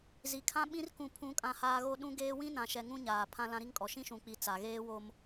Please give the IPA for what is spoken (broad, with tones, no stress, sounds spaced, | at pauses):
z i˨ kʰ ã˦ ɓ ĩ˦ r k ũ˦ pʰ ũ˦ kʼ ã˦ h aː˦ ɣ o˦ ɗ ũ˦ ɡ eː˦ w ĩ˦ n ã˨ ʃ ɛ˨ ŋ ũ˦ ɲ aː˨ pʰ ã˦ l ã˦ ɾ i˦ ŋ kʼ ɔ˨ ʃ ĩ˦ ʃ ũ˨ k͡p i˨ t͡s a˨ ɣ eː˦ w o˦ m